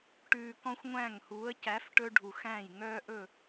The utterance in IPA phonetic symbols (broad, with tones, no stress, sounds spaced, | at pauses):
ʈ ʉː˨ k ɔ̃˦ xʷ ŋʷ æ̃˦˨ ŋ h uː˨˦ ə̯ c æ˨˦ f ʈ ɵ˦ ɖʱ u˨ x æ̃ː˦˨ j ŋ œː˦ ʔ ɵ˦˨